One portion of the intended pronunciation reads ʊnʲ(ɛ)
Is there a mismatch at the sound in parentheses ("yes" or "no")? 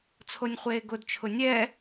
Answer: no